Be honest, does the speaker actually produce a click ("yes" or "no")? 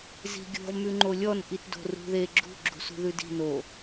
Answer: yes